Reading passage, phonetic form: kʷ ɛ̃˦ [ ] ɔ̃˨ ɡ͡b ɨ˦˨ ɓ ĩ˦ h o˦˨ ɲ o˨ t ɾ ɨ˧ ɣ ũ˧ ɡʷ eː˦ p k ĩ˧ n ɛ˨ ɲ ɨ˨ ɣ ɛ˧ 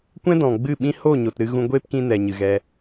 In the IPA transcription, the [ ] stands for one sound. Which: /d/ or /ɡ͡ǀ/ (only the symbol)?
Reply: d